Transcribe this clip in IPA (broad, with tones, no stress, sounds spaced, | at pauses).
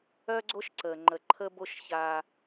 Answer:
œ˦ ɡ͡ǀ o˦ ʃ ǀ ə˨ ŋ͡ǃ ə˨ ǃʰ ə˦ b o˦ ʃ ç a˦